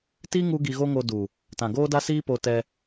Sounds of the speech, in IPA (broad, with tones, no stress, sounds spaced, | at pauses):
t i˦ ŋ u˦ ɡ i˧ ɣ o˦ ŋ o˧ d u˨ | t ã˨ ɡ oː˦ d a˦ s iː˦ p o˧ t ɛ˧